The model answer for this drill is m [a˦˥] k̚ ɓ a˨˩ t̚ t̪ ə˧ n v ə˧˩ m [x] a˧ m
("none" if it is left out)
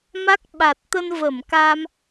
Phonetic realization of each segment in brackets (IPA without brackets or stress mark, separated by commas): a˦˥, k